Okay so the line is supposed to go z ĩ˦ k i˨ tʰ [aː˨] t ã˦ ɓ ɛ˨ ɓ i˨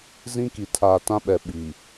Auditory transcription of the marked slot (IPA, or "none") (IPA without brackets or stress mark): aː˨